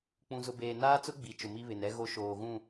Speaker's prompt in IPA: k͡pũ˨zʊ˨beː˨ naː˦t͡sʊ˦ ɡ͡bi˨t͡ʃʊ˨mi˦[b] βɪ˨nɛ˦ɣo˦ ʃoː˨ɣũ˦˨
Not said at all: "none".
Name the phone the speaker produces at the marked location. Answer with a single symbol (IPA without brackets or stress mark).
none